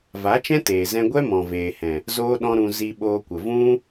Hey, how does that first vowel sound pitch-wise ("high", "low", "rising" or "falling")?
rising